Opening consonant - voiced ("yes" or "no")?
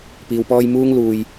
no